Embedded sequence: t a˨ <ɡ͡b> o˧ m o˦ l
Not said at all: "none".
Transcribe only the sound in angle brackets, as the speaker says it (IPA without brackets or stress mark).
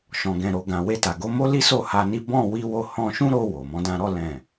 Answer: ɡ